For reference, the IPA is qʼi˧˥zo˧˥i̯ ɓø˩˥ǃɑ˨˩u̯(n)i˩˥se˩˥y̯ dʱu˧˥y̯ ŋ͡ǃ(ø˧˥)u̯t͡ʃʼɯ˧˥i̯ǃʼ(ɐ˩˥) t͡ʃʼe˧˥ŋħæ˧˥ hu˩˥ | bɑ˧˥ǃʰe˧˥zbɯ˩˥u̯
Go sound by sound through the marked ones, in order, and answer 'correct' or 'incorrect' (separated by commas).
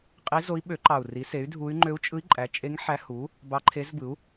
incorrect, correct, incorrect